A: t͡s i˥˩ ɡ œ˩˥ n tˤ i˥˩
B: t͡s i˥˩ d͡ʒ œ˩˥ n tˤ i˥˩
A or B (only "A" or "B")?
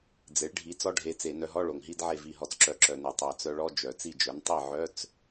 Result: B